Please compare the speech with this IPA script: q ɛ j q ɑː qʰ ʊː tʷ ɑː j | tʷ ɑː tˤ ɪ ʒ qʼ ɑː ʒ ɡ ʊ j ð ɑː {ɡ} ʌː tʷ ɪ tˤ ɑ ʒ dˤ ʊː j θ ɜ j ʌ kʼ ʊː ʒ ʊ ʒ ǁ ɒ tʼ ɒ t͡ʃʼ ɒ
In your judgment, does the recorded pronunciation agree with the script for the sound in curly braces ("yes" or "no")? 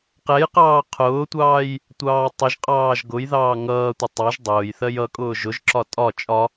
no